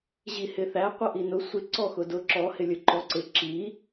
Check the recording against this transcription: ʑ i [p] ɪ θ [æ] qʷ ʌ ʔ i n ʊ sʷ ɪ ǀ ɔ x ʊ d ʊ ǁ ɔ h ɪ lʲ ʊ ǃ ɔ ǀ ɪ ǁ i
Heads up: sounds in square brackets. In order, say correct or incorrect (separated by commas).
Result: incorrect, correct